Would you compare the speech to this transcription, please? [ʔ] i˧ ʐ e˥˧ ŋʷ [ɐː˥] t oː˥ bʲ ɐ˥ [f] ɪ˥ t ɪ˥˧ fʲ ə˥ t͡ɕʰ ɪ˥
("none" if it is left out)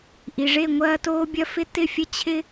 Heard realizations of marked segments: ʔ, ɐː˥, f

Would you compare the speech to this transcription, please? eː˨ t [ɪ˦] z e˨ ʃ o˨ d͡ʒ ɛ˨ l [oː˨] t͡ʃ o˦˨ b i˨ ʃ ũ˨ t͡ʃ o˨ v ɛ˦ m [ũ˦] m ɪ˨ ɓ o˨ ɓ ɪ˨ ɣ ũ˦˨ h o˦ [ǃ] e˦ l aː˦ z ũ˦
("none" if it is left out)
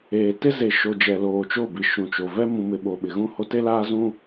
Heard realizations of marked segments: ɪ˦, oː˨, ũ˨, t

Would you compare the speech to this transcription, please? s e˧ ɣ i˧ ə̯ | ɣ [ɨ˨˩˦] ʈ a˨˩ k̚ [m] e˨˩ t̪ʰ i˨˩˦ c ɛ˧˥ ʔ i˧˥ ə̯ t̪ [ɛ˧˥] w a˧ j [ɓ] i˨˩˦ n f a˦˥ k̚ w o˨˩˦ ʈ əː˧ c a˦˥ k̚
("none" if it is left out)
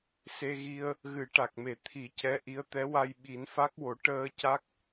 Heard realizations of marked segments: ɨ˨˩˦, m, ɛ˧˥, ɓ

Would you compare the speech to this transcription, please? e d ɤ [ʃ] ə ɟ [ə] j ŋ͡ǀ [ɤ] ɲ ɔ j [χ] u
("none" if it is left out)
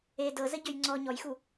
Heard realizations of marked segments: z, ø, ɔ, x

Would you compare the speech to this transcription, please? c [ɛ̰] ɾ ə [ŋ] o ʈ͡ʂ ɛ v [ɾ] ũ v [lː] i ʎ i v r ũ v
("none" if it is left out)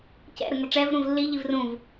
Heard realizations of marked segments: ɛ̰, ŋ, ɾ, lː

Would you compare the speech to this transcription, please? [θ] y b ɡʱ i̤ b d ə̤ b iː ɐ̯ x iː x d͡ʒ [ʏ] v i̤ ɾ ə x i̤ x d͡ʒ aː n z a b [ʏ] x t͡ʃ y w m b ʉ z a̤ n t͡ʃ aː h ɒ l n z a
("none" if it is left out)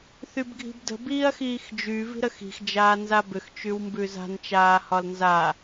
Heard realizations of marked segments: θ, y, ʏ

